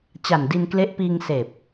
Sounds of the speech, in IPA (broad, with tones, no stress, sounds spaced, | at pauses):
t͡ɕ a˨˩ n d i˧ n k l e˦˥ ʔ p iː˧ ŋ s eː˨˩ p̚